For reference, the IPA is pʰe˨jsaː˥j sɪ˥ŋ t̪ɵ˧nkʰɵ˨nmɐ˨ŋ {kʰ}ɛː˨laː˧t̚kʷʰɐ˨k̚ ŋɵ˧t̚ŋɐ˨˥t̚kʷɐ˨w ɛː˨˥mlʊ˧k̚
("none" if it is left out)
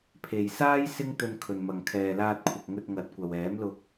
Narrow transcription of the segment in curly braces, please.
kʰ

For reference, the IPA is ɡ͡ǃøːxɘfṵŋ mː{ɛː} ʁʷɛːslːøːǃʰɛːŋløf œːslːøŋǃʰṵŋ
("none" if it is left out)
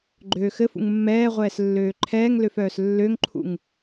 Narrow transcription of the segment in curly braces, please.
ɛː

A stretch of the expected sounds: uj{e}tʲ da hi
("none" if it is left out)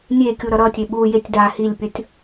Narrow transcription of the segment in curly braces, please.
e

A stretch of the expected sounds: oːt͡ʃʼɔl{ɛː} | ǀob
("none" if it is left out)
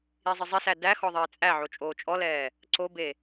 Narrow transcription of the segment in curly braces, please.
ɛː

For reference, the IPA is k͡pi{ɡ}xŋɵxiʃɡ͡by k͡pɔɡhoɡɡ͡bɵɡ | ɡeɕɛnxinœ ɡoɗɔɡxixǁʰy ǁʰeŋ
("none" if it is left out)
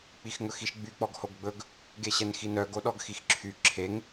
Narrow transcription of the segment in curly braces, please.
none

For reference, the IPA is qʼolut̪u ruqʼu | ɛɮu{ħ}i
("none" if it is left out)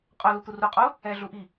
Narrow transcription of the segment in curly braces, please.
ʔ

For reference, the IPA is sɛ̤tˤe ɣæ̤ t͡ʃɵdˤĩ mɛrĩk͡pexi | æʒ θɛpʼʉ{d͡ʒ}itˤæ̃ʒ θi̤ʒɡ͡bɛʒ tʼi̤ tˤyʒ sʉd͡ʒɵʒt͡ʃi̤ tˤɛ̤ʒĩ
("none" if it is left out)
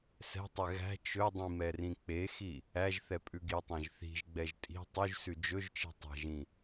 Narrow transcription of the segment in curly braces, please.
ɡ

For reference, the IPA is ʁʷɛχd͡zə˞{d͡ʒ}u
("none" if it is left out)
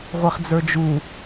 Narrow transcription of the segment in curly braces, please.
d͡ʒ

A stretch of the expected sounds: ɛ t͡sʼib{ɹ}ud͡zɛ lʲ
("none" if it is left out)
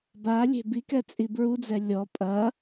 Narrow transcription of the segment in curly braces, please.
ɹ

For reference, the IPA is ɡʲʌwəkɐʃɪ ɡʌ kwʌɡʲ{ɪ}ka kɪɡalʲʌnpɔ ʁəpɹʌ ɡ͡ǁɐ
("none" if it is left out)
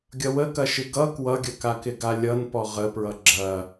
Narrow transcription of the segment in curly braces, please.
ə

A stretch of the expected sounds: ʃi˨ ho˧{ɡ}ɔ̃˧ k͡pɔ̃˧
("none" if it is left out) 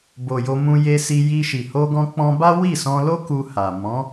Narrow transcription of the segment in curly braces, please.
ɡ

